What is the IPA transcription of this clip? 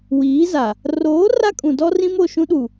w iː˨˦ z a˨ | r oː˨˦ r a˦ kʼ ũ˨ d ɔ˦ r ĩ˦ m o˦˨ ʃ ũ˦ ɗ u˨

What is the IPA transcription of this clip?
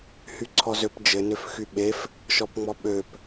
h y ǀʰ ɔ z ø p d͡ʒ ɘ n ø f x y ɓ e f | ʃ ɔ p ŋ͡m ɔ ɓ ø p

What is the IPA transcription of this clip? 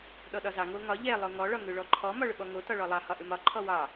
ɗ ɔ ɗ ɒ z ɑ ŋ o ŋ ɒ ʎ ɛ lˠ o ŋ ɔ ɭ ɒ ŋ ʏ ɭ ɔ ǃʰ ɔ m ɒ ɭ ʏ ɓ ɔ ŋ o t ɒ ɭ ɔ lˠ ɑ h ɒ ʔ ʏ m ɒ ǃʰ ɔ w ɑ

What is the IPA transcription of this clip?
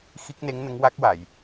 x i˦˥ k̚ n e˧˥ ŋ n ə˧˥ ŋ w a˦˥ k̚ w a˨˩˨ j

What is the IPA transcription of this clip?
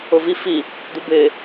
ʊ v i f i | d u b ɪː

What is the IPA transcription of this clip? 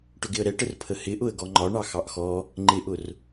ʈ ʊ ɡ ɪ ə̯ ɾ ɛ ʈ ə r pʰ ə h ɪ ʔ ʊ ə̯ ɡ ɔ ŋ͡ǃ ɒ ɳ ɑ x ɑ ʔ x ɔ | ŋ͡ǃ ɪ ʔ ʊ r

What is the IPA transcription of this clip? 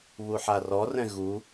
β u ħ a r ɔ r ɛ̃ ɣ u

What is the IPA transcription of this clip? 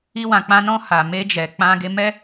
i˧ w ã˨ k͡p ã˧ n ɔ̃˧ h a˨ m e˧ d͡ʒ ɛ˨ k͡p ã˧ ɡ e˧ m ɛ˦

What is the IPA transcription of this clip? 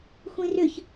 xʷ ĩ r ʏ ç

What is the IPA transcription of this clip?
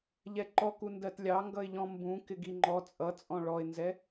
ʎ ɛ ǃ ɔ k u n d ɜ t lʲ ɑ ŋ ɡ ʌ ɪ̯ ʎ ɔ̃ m b ũ k ɪ ɡ i ŋ͡ǃ ɔ t͡sʼ ʌ t͡sʼ ɔ̃ ɭ ɔ ɪ̯ n z ɛ

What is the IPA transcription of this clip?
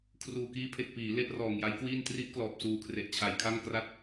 kʰ r uː˨˩ k iː˦˥ pʰ e˨˩ k̚ p iː˩˦ l e˦˥ ʔ r ɔː˨˩ ŋ j a˦˥ j k w iː˥˩ n t r i˦˥ ʔ k l ɔː˨˩ p̚ s uː˨˩ kʰ r e˨˩ ʔ t͡ɕʰ a˧ j kʰ a˥˩ ŋ k r a˦˥ t̚

